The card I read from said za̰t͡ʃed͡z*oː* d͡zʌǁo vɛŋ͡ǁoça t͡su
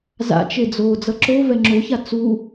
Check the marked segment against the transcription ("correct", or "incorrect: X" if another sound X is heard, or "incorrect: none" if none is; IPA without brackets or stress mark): correct